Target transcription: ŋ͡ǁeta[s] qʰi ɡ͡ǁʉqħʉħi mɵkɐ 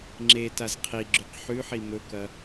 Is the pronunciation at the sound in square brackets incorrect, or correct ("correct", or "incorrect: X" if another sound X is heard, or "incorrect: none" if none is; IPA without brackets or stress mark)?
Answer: incorrect: z